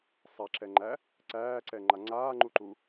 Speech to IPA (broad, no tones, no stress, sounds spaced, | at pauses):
sˤ a ǁ ɛ ŋ͡ǃ æ | ǀ æː ǀ ɛ ŋ͡ǃ a ŋ͡ǀ aː ŋ͡ǃ u ǃ u